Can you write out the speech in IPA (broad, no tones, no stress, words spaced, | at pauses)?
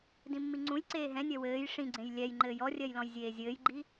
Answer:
dĩmːiŋ͡ǀũjǀeː ɦɛ̃nʲɜ wɘːj ʂĩɡ͡ǀẽj lʲɛjŋ͡ǃɘːj ɔrʲɜj lɔ̃jzʲeːzʲɘːjɡ͡ǃi